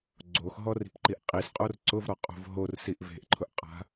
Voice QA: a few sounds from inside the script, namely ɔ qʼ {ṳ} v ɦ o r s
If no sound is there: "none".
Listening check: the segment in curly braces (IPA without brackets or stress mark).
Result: o̤